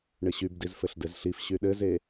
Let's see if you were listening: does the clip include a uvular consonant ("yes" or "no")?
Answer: no